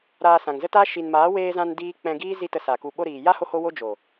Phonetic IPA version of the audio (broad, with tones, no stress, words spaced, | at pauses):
ɾaː˧sã˨ŋzə˦ta˦ ʃi˨nmaː˨˦ weː˧zã˧n diː˦ k͡pɛ̃˧ɡiː˦ zi˦ tə˧sa˨ku˧ ɓo˧ɾiː˨ja˦ ho˦ho˦wo˦ d͡ʒo˨